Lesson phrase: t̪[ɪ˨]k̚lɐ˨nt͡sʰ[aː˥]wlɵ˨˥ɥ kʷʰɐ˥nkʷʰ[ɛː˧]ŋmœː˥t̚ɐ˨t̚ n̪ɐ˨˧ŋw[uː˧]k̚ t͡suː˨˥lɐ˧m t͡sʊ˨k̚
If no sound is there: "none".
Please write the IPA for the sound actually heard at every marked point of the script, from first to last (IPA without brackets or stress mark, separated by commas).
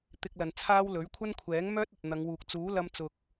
ɪ˧, aː˥, ɛː˨˥, uː˨